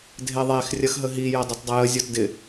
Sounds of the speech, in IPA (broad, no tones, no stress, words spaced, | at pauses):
dʱeðˤex rʲɐxɦəɦi jɐdˤʊtdˤəjə zʲɔtdɪ